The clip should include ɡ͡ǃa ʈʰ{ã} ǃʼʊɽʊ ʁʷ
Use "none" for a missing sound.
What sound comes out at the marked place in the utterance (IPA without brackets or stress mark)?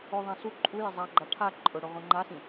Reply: a